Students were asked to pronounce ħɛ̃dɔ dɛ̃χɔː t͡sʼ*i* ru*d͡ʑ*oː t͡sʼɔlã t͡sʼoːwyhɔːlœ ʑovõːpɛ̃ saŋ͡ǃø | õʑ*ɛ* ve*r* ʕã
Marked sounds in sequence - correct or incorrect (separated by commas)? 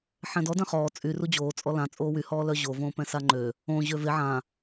incorrect, correct, incorrect, incorrect